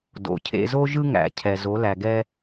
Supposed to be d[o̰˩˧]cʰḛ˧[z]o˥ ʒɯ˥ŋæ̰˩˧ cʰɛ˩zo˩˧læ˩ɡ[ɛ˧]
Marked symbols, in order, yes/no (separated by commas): yes, yes, yes